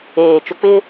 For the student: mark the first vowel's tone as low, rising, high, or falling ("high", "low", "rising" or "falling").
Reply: low